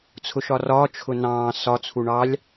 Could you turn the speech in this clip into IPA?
t͡sʰʊʃɒrɒː t͡ʃʰʊnɑ̃ː sɒ t͡sʰuɳɑlʲ

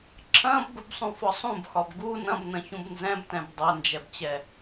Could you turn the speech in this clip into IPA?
ǁʰɐ̃ːbɡubsˤũfɒ sˤũbxɒb ɡu nɐ̃bnɐ̃çũb nzɛ̃btɛ̃b dˤɐnd͡ʒɛbt͡ɕɛ

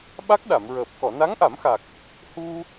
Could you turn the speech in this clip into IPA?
ɓa˦˥k̚ɗa˨˩˨mɹəː˨˩p̚ kɔ˨˩˨na˧˥ŋʔa˨˩˦mxa˨˩k̚ | hu˧

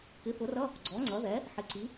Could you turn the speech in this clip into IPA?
kɪ˩˥fʊ˩˥rʌ˧˥˧ | ɡ͡ǀɔ˩˥ŋ͡ǀʌ˩˥ðɛ˩˥ | ħɪ˩˥ǀi˩˥

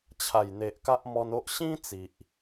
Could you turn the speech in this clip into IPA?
t͡ɕʰa˨˩jn̪e˨ʔka˦ʔ mɔ˧no˦ʔ ɕĩ˦ t͡si˨ʔ

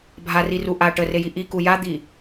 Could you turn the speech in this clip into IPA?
bʱariru ʔa ʈəreji ʔiku jad̪i

